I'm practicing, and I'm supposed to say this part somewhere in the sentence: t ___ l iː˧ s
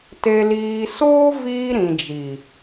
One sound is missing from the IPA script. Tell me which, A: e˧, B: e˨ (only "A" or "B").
A